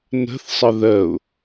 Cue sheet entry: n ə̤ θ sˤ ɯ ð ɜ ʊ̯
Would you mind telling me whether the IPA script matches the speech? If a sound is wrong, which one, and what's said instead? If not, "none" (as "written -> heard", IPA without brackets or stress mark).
ɯ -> ə